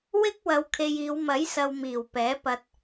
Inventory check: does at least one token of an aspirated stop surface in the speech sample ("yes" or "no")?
yes